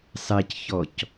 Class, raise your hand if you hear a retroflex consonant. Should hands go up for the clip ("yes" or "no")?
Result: no